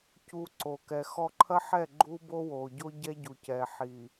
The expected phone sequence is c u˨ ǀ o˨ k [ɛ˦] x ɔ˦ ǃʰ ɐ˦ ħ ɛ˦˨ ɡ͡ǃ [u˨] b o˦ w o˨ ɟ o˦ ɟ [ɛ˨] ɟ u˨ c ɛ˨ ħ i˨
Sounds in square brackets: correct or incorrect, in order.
incorrect, incorrect, incorrect

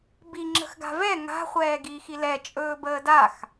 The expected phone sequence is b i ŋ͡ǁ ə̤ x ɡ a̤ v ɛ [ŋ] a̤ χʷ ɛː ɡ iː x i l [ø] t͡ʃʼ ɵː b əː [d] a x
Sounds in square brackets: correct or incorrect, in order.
correct, incorrect, correct

